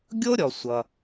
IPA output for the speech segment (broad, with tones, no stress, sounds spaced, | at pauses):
ɡʲ o˥ ɾʲ ɔ˩ sʷ ʌ˩